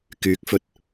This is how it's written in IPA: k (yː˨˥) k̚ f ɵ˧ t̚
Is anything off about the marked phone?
no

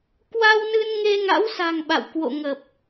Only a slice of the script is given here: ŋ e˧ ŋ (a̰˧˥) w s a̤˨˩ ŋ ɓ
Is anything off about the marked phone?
no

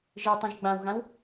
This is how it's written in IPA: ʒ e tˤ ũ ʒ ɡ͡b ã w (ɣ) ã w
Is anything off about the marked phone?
no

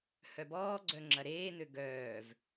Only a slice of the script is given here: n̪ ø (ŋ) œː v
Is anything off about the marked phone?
yes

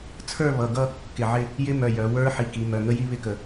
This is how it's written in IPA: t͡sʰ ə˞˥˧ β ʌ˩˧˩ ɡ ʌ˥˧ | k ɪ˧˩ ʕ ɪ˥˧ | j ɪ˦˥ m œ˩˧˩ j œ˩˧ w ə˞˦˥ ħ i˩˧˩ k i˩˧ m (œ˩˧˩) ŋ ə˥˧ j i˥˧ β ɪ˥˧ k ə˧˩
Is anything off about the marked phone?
no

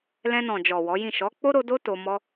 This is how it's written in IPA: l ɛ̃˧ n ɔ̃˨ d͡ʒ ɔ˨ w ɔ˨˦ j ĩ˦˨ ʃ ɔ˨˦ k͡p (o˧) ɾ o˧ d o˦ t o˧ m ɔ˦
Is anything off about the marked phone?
yes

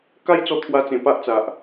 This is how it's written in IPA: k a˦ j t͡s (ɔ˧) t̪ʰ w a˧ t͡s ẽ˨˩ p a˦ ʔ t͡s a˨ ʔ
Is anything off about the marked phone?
no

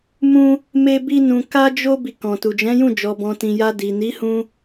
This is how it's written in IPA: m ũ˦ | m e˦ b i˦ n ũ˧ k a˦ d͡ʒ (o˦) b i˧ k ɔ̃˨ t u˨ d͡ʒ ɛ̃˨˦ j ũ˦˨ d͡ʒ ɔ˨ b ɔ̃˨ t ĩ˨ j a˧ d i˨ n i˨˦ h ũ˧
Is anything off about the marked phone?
no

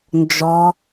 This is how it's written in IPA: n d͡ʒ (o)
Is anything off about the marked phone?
yes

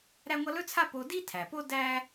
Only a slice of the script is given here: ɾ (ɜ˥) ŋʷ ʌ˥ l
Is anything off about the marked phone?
yes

